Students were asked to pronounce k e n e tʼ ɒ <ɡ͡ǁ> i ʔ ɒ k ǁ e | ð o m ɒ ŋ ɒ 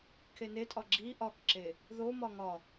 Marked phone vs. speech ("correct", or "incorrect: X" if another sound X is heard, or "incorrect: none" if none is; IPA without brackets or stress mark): correct